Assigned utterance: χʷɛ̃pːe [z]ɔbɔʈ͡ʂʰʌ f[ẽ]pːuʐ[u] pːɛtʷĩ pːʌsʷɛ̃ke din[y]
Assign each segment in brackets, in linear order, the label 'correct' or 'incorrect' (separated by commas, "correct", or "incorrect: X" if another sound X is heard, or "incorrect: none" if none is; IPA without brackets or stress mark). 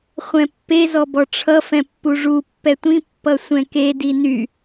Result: correct, incorrect: ɛ̃, correct, correct